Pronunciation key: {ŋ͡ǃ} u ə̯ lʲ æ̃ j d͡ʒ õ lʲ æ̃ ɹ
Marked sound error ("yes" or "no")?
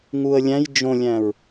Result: yes